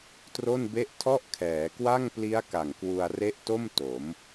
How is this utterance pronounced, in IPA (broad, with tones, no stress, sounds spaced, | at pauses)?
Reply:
t r o˥˩ n b e˥˩ ʔ tʰ ɔ˥˩ ʔ kʰ ɛː˩˦ k w a˥˩ ŋ p l i˦˥ a̯ k a˨˩ ŋ k w u˧ a̯ r e˦˥ ʔ t o˥˩ m t o˩˦ m